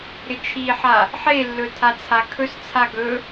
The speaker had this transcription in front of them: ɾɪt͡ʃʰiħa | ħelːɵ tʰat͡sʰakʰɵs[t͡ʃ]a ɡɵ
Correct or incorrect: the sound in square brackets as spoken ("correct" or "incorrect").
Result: incorrect